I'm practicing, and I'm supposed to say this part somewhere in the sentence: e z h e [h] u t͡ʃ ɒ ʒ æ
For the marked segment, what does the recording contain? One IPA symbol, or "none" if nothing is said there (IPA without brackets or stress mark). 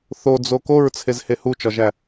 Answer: h